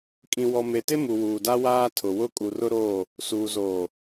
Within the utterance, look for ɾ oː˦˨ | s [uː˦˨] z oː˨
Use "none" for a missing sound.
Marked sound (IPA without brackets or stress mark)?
uː˨